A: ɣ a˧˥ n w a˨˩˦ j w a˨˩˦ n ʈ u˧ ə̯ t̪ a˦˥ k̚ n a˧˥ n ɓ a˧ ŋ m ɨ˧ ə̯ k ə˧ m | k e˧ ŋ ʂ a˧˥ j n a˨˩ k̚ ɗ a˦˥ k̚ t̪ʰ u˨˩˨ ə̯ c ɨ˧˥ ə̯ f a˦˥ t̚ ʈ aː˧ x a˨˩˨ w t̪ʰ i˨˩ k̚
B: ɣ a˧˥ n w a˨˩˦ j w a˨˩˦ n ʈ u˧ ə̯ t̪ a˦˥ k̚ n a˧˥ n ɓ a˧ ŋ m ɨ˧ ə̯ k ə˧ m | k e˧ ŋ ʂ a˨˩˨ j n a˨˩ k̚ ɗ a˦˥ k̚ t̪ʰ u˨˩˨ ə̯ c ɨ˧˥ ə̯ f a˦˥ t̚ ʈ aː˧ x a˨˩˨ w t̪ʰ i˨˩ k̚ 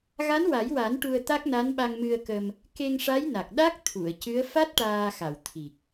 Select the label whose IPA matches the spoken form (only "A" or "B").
A